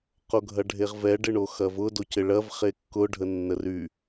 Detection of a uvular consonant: present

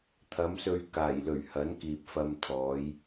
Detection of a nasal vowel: absent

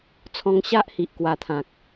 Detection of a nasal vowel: present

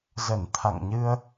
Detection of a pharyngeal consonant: absent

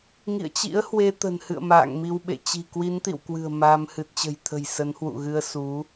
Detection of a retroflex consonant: absent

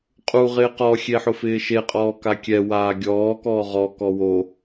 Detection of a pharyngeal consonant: present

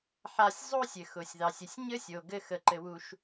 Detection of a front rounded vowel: absent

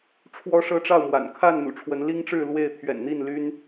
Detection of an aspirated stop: present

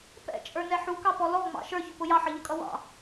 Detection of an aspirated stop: absent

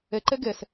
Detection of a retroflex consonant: absent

